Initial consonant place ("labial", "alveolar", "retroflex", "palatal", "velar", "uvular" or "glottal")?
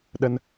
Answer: alveolar